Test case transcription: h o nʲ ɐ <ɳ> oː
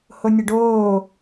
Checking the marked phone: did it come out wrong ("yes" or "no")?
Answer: yes